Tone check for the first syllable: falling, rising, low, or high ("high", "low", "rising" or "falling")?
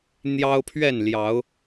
high